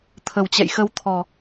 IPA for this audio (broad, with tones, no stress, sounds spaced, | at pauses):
t̪ʰ ə˨˩ w t͡ɕ ɛ̰˧˨ j x ə˧ w t̪ʰ ɔ˨˩